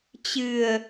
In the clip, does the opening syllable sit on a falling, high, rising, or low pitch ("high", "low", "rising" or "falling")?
low